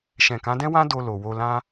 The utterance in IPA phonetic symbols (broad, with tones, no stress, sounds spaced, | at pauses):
ʃ ɛ̃˨ k ã˨˦ d ɛ̃˦ w ã˦ d o˧ l o˨ w o˧ l ã˦